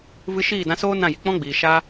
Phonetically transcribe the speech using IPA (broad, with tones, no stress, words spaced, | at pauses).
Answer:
vɨ˧ ʃiː˦˨dã˧soː˦ nã˦˨ji˨ k͡pɔ̃˦ɡ͡biː˨ ʃa˧